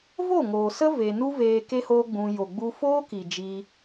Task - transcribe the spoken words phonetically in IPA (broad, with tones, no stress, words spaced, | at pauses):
vo˦˨ŋoː˨sə˦ ve˧ nu˦veː˧ ke˦hoː˦ɡ͡bũ˧ jo˨ɡ͡bu˧ foː˦ki˨ d͡ʒi˧